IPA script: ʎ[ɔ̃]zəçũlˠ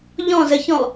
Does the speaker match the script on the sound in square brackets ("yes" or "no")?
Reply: yes